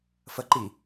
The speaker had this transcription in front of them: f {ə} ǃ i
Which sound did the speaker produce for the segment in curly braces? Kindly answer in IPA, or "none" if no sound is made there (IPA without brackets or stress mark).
ə